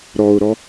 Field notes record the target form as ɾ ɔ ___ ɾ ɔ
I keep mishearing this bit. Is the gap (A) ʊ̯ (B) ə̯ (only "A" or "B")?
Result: A